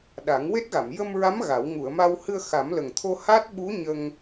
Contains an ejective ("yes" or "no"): no